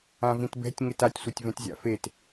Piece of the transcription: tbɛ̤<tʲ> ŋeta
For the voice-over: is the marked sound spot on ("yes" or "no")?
yes